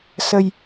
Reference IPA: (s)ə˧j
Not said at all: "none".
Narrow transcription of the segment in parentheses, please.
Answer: s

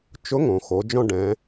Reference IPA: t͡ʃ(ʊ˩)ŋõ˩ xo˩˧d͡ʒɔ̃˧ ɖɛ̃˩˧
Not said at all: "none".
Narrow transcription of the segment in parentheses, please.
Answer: ʊ˧˥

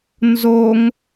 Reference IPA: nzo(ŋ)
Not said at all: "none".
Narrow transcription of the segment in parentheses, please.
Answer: ŋ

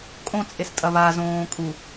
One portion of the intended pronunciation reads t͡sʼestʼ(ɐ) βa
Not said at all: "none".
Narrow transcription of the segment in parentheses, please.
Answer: ɐ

